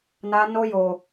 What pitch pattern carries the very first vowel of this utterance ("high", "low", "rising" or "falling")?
high